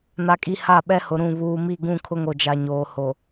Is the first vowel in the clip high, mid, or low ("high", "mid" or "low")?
low